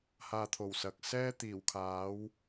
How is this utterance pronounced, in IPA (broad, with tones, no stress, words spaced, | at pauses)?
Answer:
haː˧t̪ʰo˨˩wsɐ˨k̚sɛː˥ t̪iː˨˩wkʰaː˨˥w